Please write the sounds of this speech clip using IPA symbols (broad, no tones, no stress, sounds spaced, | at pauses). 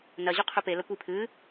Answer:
n ɐ ʑ ʉ qʰ ɵ p e l ɐ kʷ i pʰ ɨ